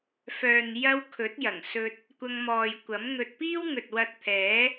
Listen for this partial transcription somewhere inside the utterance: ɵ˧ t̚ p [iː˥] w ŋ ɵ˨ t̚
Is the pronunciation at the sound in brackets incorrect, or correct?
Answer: correct